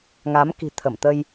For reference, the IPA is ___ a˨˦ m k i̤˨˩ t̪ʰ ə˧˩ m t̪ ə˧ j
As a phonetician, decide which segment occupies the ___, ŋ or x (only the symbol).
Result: ŋ